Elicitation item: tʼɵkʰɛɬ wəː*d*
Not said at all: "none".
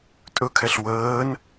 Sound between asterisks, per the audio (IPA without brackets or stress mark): n